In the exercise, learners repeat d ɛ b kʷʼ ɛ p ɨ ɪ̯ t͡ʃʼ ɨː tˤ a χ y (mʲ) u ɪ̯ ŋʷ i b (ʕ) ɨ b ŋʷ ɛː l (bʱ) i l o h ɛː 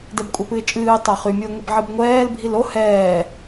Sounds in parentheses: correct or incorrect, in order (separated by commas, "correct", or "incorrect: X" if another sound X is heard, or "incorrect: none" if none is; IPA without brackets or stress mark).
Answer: correct, correct, correct